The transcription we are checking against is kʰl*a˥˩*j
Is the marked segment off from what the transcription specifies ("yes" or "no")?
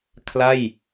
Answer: no